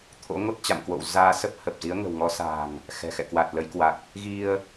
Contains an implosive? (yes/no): no